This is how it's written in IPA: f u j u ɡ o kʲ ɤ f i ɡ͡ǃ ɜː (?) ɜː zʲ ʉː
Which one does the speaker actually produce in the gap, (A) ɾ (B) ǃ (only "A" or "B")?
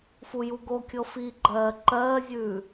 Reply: B